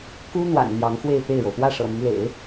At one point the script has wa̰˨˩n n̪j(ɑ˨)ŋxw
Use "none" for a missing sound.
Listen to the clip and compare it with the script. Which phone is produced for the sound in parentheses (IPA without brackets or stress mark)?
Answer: ɑ˧˥